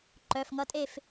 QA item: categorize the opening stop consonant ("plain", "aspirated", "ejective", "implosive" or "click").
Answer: click